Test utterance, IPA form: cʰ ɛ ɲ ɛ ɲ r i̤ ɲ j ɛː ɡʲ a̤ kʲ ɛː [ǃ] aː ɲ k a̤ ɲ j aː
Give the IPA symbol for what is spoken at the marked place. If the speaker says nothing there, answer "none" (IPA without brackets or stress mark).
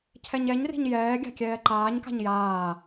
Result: ǃ